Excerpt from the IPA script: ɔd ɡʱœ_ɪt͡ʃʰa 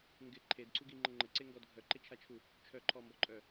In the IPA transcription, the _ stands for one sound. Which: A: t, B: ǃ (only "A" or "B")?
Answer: B